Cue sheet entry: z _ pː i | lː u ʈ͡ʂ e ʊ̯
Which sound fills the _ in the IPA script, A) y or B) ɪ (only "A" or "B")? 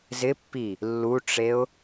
B